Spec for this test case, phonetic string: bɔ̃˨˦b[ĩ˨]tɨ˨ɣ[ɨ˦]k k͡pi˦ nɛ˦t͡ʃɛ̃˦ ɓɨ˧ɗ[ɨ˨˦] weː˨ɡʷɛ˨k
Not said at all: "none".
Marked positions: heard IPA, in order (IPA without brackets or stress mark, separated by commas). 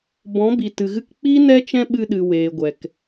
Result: i˨, ɨ˧, ɨ˨